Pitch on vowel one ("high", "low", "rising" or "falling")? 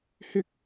high